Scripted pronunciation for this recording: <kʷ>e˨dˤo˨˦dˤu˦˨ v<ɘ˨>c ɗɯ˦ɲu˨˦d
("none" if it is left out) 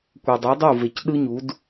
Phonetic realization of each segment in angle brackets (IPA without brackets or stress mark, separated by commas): kʷ, e˨